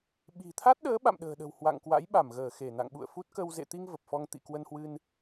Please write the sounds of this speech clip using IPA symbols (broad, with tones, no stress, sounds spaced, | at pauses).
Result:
ɓ i̤˨˩ t̪ʰ a˦˥ t̚ ɗ əː˨˦ ɓ a̰˧˨ m ɗ ə̤ː˨˩ ɗ ə̤˨˩ w h w a̰˧˨ ŋ k w a̰˧˥ j ɓ a˧˩ m ɣ əː˧˩ x e˧˩ n a̰˧˨ ŋ ɓ ṵ˧˨ ə̯ f u˦˥ t̚ k ə˧ w z ḛ˧˨ t̪ i˧ ŋ v ə˨˩ p̚ f ɔ˧ ŋ t̪ ḭ˧˨ k w ə˧ n h w ɨ˧ n